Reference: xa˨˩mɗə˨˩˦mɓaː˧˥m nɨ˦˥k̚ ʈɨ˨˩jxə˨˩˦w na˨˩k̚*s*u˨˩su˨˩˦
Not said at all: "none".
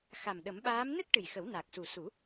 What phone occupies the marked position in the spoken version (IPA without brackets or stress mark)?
s